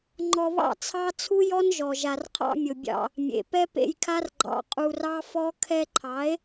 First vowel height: mid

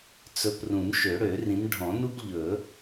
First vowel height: mid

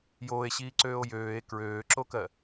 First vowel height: mid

